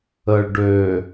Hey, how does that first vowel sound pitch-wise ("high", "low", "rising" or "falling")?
low